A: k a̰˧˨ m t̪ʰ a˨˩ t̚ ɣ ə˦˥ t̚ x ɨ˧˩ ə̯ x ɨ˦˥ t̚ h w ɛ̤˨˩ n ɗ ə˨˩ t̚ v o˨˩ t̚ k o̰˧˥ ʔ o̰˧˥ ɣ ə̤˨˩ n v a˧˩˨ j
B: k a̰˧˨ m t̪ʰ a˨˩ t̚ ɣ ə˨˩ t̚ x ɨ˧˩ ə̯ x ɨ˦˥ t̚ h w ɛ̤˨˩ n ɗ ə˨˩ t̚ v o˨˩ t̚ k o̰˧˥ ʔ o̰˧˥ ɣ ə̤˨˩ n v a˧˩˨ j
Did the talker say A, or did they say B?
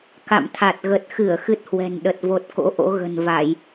B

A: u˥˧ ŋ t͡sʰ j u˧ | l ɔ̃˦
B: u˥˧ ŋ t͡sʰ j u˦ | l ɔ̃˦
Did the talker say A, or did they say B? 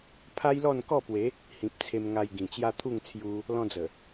A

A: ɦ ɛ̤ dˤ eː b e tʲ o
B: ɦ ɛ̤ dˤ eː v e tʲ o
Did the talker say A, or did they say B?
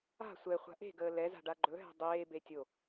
A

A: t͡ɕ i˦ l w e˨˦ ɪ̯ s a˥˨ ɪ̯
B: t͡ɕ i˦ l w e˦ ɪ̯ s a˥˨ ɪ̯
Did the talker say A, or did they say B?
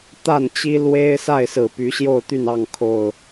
B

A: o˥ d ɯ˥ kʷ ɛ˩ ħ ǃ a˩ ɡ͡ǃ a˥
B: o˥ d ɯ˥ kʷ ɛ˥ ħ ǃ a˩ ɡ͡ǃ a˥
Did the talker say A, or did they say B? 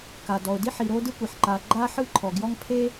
A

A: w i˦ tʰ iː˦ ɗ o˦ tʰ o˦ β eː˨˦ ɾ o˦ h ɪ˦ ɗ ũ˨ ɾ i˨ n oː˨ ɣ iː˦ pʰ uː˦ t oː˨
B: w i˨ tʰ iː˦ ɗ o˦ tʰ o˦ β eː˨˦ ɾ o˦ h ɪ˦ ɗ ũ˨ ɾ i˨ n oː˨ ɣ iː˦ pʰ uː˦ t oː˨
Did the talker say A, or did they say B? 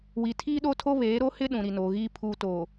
B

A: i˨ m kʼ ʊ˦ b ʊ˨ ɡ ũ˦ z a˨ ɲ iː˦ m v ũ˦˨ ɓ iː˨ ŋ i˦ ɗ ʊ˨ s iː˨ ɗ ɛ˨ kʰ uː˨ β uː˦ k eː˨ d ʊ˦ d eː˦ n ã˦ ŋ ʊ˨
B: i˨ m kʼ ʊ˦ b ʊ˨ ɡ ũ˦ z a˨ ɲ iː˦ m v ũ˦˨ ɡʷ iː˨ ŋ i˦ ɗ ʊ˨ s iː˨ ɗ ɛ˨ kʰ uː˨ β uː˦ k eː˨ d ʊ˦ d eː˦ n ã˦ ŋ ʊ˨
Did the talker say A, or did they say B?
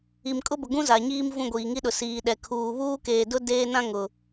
B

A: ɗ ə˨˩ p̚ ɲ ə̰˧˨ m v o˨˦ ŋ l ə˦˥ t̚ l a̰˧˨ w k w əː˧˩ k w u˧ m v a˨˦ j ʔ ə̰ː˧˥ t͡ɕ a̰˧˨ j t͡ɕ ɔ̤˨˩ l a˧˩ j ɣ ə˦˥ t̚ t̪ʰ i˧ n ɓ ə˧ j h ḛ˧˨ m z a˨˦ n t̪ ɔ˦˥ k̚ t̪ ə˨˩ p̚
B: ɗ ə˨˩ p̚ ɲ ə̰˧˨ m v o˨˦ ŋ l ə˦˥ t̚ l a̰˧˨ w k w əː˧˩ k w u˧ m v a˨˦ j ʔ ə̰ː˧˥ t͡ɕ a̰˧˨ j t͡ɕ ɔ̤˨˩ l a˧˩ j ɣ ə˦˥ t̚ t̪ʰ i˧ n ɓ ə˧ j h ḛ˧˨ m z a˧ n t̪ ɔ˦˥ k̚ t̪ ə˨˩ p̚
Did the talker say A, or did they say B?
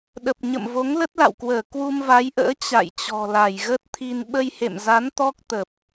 A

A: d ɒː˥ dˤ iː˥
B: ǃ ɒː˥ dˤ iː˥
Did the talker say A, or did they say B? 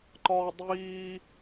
B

